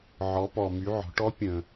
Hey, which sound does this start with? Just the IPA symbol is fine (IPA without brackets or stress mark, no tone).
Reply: ʕ